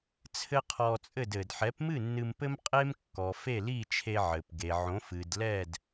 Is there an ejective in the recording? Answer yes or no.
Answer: yes